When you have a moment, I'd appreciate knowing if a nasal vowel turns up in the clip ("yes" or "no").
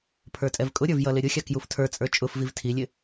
no